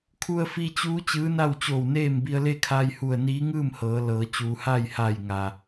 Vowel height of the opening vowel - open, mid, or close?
close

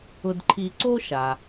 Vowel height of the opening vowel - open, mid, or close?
close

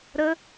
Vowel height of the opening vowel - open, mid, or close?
mid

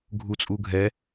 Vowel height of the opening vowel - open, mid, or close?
close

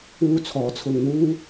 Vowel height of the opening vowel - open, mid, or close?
close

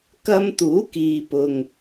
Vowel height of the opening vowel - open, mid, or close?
open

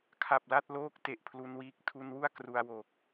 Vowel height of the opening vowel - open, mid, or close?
open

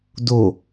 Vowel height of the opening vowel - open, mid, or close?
mid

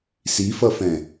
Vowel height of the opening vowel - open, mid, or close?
close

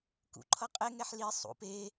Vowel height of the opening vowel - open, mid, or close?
close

